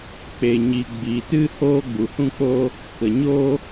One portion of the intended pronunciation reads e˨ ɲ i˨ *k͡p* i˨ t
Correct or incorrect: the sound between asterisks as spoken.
incorrect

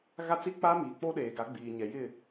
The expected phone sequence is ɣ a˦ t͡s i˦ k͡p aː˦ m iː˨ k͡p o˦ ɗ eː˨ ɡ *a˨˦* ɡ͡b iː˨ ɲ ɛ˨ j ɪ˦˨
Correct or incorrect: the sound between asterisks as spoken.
correct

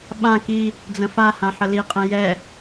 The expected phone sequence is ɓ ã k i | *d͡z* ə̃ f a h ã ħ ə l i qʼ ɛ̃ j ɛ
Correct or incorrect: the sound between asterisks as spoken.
correct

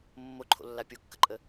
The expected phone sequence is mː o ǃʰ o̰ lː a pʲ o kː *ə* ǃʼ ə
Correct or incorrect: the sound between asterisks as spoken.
correct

